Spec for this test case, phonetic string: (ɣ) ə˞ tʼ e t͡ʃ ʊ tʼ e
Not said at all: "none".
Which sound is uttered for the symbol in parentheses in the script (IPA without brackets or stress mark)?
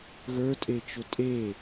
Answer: ɣ